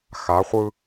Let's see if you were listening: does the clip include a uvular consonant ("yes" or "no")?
yes